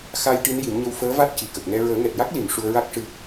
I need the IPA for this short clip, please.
x a˧ j ʈ i˧˥ n j i˨˩˦ m ɲ ə˧ w f əː˧˥ v a˦˥ t̚ c i˨˩ k ə˨˩ k̚ ŋ ɛ˧ ɹ əː˨˩˦ ŋ ɛ˨˩ t̚ j a˦˥ k̚ l i˨˩˨ m ʂ u˧ ə̯ ɹ a˦˥ k̚ ʂ ɨ˧

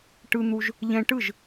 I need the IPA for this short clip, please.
ʈ ɯ˧ n̪ u˧ ʒ | ʎ ɛ̃˧ ʈ ɯ˥˩ ʒ

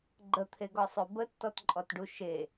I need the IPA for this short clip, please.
ɡ͡ǃ ə t̪ʰ e ɡ ɔ sˤ o b ə tː ɔ t ǃʼ ɔ t ɖ u ʃ e

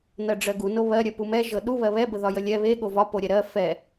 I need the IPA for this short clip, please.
n ɜ ɖ͡ʐ ɜ ɡ u n o β ɜ ɾʲ ɜ p u m ɛ ʒ ɤ ɗ u β ɜ β ɛ b ə ð ɒ j ə lʲ ɛ β e ɠ o v ɒ p o ɾʲ ɛ ɾ ɜ f ɛ

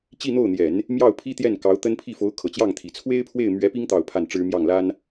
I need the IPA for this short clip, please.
t͡ɕ i˥˧ n̪ o˥˩ ʊ̯ n̪ j ɛ˨˩˦ n | m j ɑ˥˩ ʊ̯ pʰ i˥ t̪ j ɛ˥˩ n k ɑ˧˥ ʊ̯ t̪ ə˥ n pʰ i˥˩ f o˧˥ ʊ̯ kʰ ɤ˨˩ t͡ɕ j ɑ˥˩ ŋ t̪ʰ i˨˩ t͡sʰ w e˥ ɪ̯ pʰ w e˥˩ ɪ̯ m ɥ ɛ˧˥ p i˥ ŋ t̪ ɑ˥˧ ʊ̯ pʰ a˥˩ n ʈ͡ʂ ɻ̩˥ m j ɑ˥˩ ŋ l a˥ n

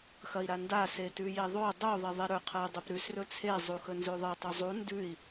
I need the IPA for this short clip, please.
x ɐ i̯ ɾ a n d a s e t ʉ j i ðˤ o dˤ u ðˤ i ðˤ i ɾ ɵ qʰ ɐ u̯ dˤ ɨ p ɾ ʉ s r ɵ t͡sʰ e zˤ u x ɵ n z ʉ ðˤ ɨ tˤ ɵ zˤ u n d ʉ i̯

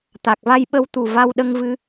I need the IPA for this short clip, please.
t̪ a˨˩ k̚ v a˧ j ɓ ə˧ w t̪ u˨˩ v a˧ w ɗ ə˧ ŋ v ɨ˧

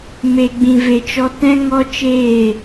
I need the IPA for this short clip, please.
m e˨ ɡ͡b ĩ˨ v e˨ t͡ʃ ɔ˧ t ɛ̃˦ ŋ ɔ˦ t͡ʃ eː˦˨

